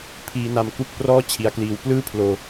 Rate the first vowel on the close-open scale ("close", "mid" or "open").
close